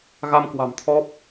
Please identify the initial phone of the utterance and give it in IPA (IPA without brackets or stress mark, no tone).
ɣ